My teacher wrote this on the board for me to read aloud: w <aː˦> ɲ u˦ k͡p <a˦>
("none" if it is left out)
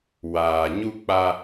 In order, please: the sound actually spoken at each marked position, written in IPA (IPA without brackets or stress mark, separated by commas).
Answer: aː˨, a˦